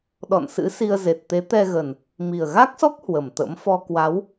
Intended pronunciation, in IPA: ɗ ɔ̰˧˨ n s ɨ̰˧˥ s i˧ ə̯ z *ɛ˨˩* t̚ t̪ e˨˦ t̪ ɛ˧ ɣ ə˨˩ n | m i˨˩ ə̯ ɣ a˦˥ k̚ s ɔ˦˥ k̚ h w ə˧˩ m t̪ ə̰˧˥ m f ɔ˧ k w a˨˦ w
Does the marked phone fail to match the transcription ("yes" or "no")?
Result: yes